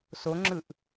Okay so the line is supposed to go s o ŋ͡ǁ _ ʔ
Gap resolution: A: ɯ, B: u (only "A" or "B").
A